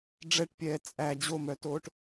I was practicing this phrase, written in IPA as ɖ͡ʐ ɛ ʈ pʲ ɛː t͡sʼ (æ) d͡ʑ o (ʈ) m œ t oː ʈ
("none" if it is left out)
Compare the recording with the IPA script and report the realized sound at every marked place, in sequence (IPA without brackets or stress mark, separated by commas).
æ, none